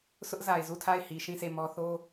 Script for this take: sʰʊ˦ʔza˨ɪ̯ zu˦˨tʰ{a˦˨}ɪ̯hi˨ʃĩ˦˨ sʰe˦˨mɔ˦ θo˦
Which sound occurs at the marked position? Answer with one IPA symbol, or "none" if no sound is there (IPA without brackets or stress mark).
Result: a˦˨